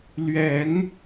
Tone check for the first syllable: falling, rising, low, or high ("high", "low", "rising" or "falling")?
rising